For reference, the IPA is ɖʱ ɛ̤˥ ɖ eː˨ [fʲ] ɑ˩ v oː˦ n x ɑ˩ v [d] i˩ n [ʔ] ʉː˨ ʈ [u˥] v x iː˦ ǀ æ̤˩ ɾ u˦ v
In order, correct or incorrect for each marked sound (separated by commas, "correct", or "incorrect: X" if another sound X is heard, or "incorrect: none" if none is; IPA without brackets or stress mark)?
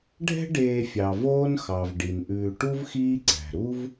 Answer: correct, incorrect: ɖ, correct, correct